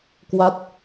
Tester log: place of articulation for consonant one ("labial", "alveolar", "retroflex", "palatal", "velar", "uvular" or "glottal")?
velar